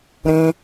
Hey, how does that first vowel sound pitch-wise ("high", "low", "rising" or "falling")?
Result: high